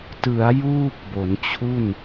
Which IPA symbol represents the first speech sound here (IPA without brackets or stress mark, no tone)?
t